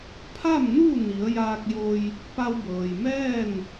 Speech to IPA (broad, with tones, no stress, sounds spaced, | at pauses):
pʰ a˥˨ m n uː˥˨ n i˩˧ ə̯ j aː˧ k̚ j o˧ j | p a˧ w b ɤː˩ j m ɛː˥˨ n